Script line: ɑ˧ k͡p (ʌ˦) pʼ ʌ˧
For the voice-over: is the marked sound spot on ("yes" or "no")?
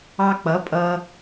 no